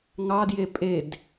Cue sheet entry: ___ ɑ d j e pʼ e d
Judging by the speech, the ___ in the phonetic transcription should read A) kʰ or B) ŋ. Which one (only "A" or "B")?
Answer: B